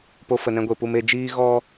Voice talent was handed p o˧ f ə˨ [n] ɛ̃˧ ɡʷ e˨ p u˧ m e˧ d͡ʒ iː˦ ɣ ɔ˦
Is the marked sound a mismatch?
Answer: no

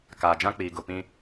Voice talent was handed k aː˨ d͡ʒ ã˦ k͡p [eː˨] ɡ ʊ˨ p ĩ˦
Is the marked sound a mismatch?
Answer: yes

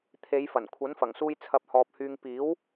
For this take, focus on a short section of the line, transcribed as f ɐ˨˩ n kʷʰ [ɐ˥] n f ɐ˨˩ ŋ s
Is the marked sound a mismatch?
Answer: yes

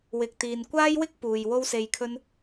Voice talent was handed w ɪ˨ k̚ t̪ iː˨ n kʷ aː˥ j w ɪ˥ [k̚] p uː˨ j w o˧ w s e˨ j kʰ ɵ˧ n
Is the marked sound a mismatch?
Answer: no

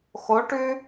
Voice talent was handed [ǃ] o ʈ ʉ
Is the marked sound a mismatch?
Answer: yes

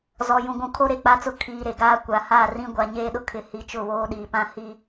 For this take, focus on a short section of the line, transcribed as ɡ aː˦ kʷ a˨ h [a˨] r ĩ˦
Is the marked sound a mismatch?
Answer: yes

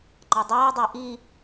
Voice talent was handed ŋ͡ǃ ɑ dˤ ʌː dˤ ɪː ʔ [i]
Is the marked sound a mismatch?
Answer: no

